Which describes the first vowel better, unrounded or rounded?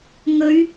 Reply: rounded